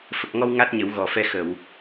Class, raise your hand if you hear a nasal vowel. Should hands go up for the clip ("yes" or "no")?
no